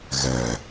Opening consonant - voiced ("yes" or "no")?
yes